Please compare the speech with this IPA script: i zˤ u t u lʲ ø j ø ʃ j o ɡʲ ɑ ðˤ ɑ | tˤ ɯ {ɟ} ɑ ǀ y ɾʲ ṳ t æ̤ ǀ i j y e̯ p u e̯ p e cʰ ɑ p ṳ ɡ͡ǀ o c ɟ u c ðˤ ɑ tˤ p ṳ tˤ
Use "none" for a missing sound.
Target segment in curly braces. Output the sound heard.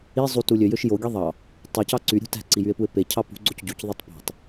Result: c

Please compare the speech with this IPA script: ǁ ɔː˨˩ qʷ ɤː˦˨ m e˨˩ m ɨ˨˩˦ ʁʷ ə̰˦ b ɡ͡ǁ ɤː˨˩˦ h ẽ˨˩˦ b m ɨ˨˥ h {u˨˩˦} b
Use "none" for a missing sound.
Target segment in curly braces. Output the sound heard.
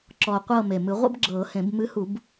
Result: u˨˩˦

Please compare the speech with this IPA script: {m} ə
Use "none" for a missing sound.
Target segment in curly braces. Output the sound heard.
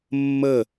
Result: mː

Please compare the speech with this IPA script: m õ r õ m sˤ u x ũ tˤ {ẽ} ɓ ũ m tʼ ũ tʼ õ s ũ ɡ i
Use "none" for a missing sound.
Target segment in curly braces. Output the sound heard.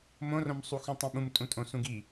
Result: ĩ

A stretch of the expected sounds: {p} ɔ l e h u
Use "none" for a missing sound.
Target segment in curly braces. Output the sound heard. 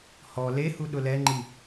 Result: h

